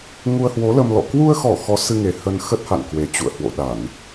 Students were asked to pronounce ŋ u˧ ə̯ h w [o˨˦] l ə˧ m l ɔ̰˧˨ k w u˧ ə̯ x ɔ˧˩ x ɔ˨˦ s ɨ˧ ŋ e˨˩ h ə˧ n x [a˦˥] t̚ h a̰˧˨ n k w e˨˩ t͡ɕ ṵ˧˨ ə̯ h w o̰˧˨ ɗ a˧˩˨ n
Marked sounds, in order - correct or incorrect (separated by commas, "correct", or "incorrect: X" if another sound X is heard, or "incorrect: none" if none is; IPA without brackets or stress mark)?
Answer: correct, incorrect: ə˦˥